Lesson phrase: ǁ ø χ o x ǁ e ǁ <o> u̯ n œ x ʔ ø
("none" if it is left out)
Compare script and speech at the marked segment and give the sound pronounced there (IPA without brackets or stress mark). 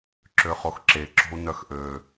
o̤